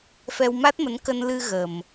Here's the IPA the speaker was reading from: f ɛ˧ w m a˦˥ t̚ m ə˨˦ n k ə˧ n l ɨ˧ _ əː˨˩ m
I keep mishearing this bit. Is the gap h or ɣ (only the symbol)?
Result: ɣ